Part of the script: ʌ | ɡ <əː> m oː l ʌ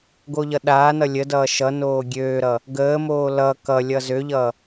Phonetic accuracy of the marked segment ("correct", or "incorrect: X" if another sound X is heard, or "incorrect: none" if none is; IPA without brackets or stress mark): correct